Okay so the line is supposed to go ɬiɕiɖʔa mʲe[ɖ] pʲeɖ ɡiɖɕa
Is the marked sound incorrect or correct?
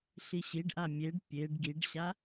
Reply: correct